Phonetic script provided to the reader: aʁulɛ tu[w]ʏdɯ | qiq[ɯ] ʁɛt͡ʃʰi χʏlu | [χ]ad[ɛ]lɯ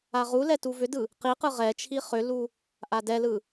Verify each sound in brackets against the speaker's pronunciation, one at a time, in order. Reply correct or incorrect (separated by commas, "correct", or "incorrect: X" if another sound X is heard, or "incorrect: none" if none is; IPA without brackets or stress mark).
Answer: incorrect: v, correct, incorrect: ʔ, correct